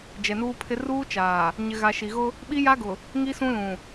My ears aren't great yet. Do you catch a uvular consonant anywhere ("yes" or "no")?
no